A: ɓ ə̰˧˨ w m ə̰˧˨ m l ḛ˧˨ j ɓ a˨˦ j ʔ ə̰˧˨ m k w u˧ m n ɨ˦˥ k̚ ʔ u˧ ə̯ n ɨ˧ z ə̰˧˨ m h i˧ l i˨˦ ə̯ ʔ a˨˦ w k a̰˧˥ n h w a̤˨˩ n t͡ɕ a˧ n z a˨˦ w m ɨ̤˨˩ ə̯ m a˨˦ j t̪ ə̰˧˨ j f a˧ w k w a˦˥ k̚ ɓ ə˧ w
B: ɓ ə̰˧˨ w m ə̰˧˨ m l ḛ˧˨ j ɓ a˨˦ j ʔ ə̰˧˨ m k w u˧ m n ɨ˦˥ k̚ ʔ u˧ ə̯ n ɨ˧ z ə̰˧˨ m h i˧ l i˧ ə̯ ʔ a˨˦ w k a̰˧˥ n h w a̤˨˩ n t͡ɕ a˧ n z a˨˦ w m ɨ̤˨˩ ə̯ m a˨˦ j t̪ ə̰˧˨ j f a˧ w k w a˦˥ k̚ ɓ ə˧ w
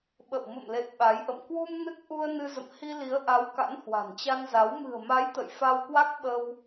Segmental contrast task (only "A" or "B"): A